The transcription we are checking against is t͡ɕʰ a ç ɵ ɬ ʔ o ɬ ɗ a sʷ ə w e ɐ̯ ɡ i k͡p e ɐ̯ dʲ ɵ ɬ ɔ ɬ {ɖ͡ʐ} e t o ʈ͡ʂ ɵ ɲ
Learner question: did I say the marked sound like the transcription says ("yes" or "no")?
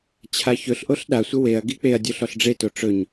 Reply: yes